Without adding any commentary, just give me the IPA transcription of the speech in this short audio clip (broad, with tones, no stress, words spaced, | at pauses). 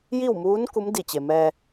ji˥˨wmuː˧˥n ku˧˥mdi˧˩ t͡ɕe˩mɛː˧